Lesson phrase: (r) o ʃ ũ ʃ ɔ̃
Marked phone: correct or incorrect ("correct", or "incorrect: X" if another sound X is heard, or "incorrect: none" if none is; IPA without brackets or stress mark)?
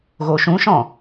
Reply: incorrect: ɣ